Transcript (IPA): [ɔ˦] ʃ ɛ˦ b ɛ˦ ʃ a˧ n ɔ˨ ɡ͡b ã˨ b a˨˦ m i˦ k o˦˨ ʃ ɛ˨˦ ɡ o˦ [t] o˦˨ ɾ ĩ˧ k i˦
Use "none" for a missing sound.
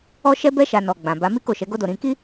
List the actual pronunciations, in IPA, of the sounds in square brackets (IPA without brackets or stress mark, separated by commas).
ɔ˦, d